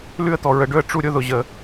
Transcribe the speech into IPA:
lʉ˦ə̯t̪ɔ˨ ɹə˨ɖɵ˧ə̯ ʈ͡ʂu˦ɾʲʊ˦ ðʊ˨ʑə˨

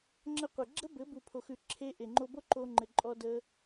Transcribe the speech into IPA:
ŋ͡ǁə˧qʷɘ˨ ɡ͡ǁə˦ bɘ˨˦bu˨pʰo˨xʉ˨ ǁʰe˧ ʔe˨ŋ͡ǃo˧bo˦ ǃo˧ŋ͡ǃɘ˨ǃʼɔ˧ də˧

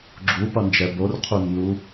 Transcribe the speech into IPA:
ɡ͡ǁupʌnd͡ʒɛ borqʰunːu

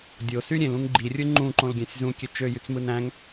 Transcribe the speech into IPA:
dʲosy ɾʲẽlũŋ ɡ͡ǃirʲɯ ŋ͡ǃũǃõl ɡʲæ̃sʲzũkʲø t͡ʃøjyt͡smɯn æ̃ŋ

